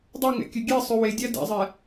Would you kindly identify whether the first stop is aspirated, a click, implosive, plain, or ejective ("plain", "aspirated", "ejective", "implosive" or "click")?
plain